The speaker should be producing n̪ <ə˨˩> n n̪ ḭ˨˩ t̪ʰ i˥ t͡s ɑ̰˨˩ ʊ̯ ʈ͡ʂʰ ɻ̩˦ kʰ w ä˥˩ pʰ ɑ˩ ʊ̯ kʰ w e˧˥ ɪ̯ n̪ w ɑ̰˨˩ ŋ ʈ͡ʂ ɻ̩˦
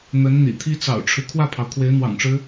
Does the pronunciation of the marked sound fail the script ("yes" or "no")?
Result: yes